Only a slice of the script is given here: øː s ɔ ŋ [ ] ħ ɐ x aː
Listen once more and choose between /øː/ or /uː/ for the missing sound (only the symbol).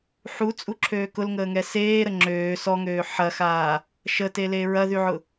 øː